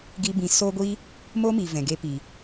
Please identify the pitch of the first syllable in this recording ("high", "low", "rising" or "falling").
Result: high